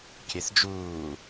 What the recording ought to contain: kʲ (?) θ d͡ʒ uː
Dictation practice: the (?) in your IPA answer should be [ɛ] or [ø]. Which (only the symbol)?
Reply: ɛ